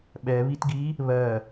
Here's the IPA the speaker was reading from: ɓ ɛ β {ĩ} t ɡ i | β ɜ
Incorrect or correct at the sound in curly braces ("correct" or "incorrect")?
incorrect